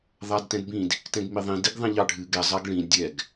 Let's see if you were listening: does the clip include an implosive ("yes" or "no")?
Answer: no